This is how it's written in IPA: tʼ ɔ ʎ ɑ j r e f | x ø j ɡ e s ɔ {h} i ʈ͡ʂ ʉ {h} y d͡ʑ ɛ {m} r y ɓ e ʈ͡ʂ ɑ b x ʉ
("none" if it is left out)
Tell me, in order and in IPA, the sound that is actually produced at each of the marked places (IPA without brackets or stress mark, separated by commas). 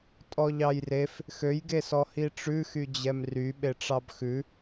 h, x, m